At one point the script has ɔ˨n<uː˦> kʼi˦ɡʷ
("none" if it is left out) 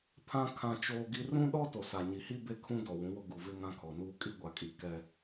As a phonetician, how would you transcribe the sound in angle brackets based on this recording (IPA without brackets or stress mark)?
uː˦